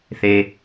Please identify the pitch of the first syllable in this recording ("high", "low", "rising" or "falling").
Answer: low